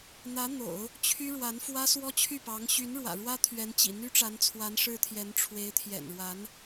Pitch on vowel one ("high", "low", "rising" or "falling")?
rising